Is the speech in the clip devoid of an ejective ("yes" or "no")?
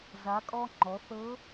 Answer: no